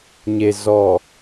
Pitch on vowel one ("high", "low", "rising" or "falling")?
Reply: low